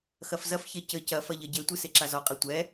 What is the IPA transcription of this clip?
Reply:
x ɐ f z ɐ f ç e c ɘ c ɐ f ɐ ʎ ɐ ɟ e tʷ ɨ s e ǁ a z ɔ qʼ e tʷ ɛ

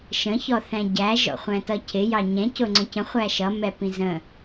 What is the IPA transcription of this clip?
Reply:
ʃ ə̃ ç ɔ θ æ̃ ɟ æ ʒ ɔ̰ χʷ æ̃ t ʌ cʰ ɪ j ɑ ɲ ɛ̃ c ʊ ŋ͡ǀ ə̃ c ə̃ χʷ æ ʃ ʌ m ɛ p ĩ z ə̃

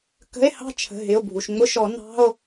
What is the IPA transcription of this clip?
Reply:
k ə̤˧˥˧ e̯ h ɑ̤˥˨ t͡ʃʰ ə̤˩˧˩ ɦ ɪ˩˧˩ o̯ bʱ u˩ ʃ ŋ͡m ʊ˧˥˧ ʃ ɔ˨˩˦ n ɑ̤˧˥˧ o̯

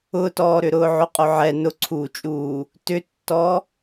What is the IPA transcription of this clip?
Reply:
ʊ t ɔː ɾ ʏ ɾ ʊː ʕ ʊ qʼ ʊ ʕ ɛ n ʊ ǀʰ uː t͡ʃʼ uː | t ʏ tː ɔ

